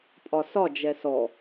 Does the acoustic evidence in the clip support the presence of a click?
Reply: no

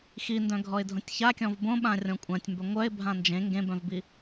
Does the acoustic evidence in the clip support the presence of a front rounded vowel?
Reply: yes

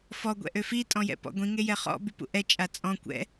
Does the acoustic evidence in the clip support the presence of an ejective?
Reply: yes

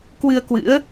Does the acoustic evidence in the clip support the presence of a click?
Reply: no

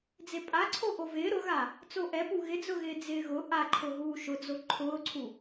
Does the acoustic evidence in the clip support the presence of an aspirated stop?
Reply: yes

